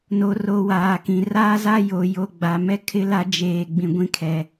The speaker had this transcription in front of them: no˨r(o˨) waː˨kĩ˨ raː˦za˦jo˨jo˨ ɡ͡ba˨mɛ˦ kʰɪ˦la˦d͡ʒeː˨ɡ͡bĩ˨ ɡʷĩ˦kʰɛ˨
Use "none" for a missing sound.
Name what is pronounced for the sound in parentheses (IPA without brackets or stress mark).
o˨